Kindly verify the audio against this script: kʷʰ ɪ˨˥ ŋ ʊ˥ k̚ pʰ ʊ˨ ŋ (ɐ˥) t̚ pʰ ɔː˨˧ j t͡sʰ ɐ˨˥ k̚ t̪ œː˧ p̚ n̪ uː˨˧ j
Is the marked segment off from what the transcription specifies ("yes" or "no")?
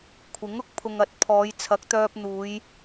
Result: yes